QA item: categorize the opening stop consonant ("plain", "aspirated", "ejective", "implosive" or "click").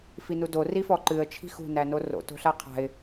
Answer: plain